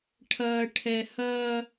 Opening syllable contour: low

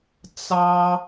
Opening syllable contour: high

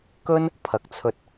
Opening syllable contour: high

